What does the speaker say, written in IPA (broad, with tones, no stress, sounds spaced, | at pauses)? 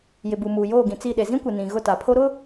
j ɪ˨ b u˨ m uː˨ j oː˦˨ ɡ ĩ˨ t͡s i˦˨ ɗ e˨ z ĩ˦ kʷ ɪ˨ n ĩ˨ ɣ ʊ˦˨ t a˨ pʰ o˦ ɾ ʊ˦